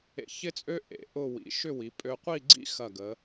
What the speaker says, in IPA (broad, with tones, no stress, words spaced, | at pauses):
ḛ˧çɪ˥t͡sʼø˥ ʔḛ˩˧ ʔʊ˥˧ wḭ˩˧ʃʏ˥˧ wi˩˧pʼø˧qʷi˥˧ɡ͡ǀḭ˥ xɐ˧˩ɡə˩˧